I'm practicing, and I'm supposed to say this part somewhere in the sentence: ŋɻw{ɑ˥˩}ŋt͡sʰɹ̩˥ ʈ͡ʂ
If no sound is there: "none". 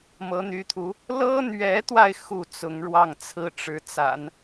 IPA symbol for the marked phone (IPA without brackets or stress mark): ɑ˥˩